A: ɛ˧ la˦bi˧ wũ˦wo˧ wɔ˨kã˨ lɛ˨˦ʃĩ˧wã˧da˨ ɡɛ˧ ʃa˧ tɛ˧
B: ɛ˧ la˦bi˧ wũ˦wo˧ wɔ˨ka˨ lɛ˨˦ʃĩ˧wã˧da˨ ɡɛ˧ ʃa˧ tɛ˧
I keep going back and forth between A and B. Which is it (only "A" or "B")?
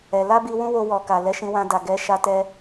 B